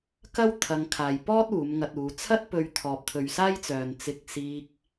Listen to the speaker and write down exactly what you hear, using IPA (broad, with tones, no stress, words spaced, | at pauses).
kɐ˥wt̪ʰɐ˧ŋkʰaː˨j pɔː˥t̚ uː˨˧mŋɐ˧t̚uː˨˧ t͡sʰɐ˥t̚pɵ˧ɥ t̪ʰɔː˨p̚t̪ʰɵ˨ɥsaː˥jt͡sœː˨n t͡sɪ˧k̚siː˧k̚